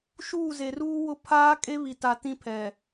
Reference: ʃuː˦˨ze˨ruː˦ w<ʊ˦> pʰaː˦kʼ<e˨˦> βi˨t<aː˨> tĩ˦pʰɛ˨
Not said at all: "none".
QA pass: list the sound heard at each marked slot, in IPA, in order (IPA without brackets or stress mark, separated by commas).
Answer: ʊ˦, e˦, a˨